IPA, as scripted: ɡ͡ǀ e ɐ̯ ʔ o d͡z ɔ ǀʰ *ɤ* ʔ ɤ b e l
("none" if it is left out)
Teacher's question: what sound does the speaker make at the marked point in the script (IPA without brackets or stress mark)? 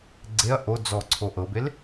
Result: o